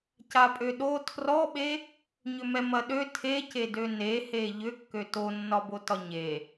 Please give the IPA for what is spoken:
capʼøɗo tʰrɔɓe | ɲʏmɛmɐɗø tʰece dønehe ʎʏ kːøtonːɒbo tɒɲe

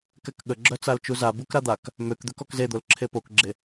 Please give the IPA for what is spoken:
kɛkɠəɡ͡ǁœ t͡salt͡ʃuza bukɾad̪ak | møk d̪økɔkzed̪ol ǁʰepokɡ͡ǁe

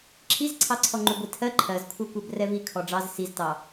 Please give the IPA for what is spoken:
ǁʰizǀʰɑǀʰɔ ŋ͡ǃuɡʷitʰɜ ǃʰɜzkʷʰɜkʷɛb rɛvi kʰɔɖ͡ʐɑz siztɑ

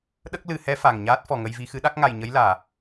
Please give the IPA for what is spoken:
ɗə˦˥k̚lɨ˨˩˦hɛ˧˥ fa˨˩ŋ ɲaː˦˥t̚fɔ˨˩ŋə˧jvi˧ xɨ˧˥ɗa˦˥k̚ŋa˨˩j ɲə˧˥jlaː˨˩˨

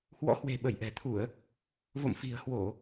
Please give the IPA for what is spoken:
hwɔ̰˧˥hwe̤˨˩ ɓə˧˩jʔɛ̤˨˩t̪ʰu˧˩˨ə̯ | vo̰˧˨mfi̤˨˩ə̯hwo˧˩˨

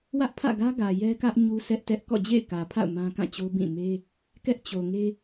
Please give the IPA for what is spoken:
wä˦ʔpʰä̰˦˨ɡä˦ɡä˨ jɛ˦kä˦ʔ ɲu˦sɛ˦ʔtɛ˦ʔ kɔ̰˦˨d͡ʑḛ˦˨ɪ̯kä˨pʰa̰˦˨ʊ̯ mã˦kã˦˨t͡ɕo˦ bĩ˦˨ me˦ | kɛ˦ʔt͡ɕo˨ŋe˦

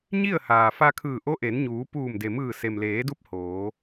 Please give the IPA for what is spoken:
ɲi˥˨ə̯haː˩ fa˧kʰɯː˧˩ ʔo˧˥ʔe˩˧nɲuː˩˧ puː˧˩mde˩mɯː˧˩ se˩mleː˩˧du˧˥p̚ hoː˩˧

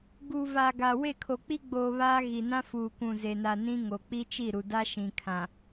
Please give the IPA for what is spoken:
ɡu˨ va˨ɡa˨ we˦˨kʰo˨ k͡pi˦ɡ͡boː˨ βaː˦ ɣi˨ nã˦fuː˨kʷũ˨ ze˨na˨ nĩ˦ŋo˨ k͡pi˦t͡ʃi˦˨ɾu˨da˦ ʃĩ˨kʰã˨

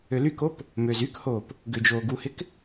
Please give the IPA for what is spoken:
ølykop | møːzykhoːp | ɡʏːd͡ʒoːɡuhɪk

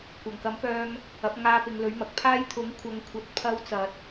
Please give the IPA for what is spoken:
kʷɐ˨˩ŋkɐ˨˥mpœː˧ŋ | ɐ˨˥p̚ŋaː˧ pɪ˨˧ŋlɵ˨˥ɥmɐ˨k̚ pʰaː˥j t̪ʰʊ˨˥ŋkʷʰɐ˨˧ŋ kʷʰɐ˨˥t̚ pʰɐ˧w t͡sɐ˨t̚

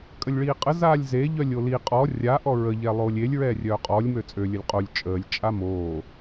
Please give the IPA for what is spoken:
kʼəlʲɭiːqʼə zaːlʲze ʎœlʲoli qʼɔ rʲa ʔɔɹə ʎɛlˠoːlʲelʲ ɹɛːrʲœːqʼɔlʲ møt͡sʼø lʲəlʲqʼolʲ t͡ʃʼəːlʲ t͡ʃʼamoː

